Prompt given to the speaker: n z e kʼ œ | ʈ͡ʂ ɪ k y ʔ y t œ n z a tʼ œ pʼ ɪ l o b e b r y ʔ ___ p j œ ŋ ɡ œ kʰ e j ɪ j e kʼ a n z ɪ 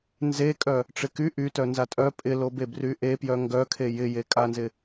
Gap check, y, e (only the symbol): e